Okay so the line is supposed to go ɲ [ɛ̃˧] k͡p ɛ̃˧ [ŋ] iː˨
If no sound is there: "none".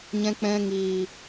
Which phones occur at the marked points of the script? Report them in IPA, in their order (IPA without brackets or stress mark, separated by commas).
ɛ̃˧, ŋ